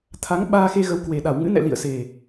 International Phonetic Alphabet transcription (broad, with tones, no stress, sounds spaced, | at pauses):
t̪ʰ a˨˦ ŋ ɓ aː˧ x e˧ ɣ ə˨˦ w k w e˨˩ ɗ a˧˩ w ŋ ɨ̰˧˥ n ɛ̰˧˨ l ḭ˧˨ ə̯ s e˨˩